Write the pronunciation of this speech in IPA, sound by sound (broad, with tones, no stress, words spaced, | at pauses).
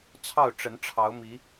t͡sʰɑ˥˨ʊ̯ʈ͡ʂə˨˦nʈ͡ʂʰɑ˨˦ʊ̯mi˨˦